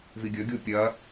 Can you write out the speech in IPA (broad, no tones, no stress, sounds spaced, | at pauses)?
v i ɡʲ ɵ ɡʲ u pʲ ɐ